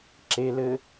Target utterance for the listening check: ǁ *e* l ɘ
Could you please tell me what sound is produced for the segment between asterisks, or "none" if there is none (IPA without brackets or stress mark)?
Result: e